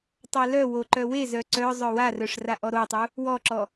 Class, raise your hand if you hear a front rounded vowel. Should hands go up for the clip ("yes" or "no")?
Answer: yes